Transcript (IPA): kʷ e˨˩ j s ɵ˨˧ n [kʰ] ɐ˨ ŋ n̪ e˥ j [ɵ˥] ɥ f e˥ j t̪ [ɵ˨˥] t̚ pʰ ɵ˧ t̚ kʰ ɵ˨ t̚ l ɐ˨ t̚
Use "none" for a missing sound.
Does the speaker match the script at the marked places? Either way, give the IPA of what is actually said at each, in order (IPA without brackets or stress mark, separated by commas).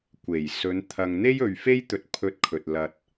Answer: t̪ʰ, ɵ˨, ɵ˧